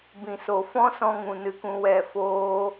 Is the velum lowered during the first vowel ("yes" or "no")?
yes